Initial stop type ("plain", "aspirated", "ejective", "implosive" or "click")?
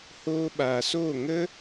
implosive